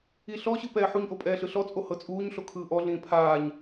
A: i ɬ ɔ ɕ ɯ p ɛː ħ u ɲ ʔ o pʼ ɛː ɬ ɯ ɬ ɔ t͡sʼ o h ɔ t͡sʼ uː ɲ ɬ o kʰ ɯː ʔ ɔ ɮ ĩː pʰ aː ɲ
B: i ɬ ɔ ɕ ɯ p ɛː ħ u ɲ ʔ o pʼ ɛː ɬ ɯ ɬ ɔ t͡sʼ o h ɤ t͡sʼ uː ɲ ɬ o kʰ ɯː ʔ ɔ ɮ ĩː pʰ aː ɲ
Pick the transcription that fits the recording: B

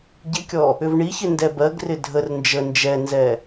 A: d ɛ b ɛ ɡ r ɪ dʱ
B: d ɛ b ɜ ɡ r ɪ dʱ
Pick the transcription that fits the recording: B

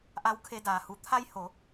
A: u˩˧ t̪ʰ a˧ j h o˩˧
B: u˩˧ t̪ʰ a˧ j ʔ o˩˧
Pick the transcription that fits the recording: A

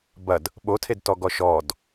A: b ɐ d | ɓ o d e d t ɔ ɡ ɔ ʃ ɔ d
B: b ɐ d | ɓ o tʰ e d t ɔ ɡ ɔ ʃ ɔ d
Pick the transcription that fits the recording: B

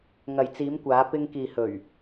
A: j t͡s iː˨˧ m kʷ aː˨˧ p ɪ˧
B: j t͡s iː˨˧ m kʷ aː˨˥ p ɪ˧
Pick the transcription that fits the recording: A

